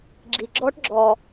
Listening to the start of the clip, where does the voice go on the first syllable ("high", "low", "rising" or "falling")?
low